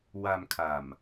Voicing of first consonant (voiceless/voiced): voiced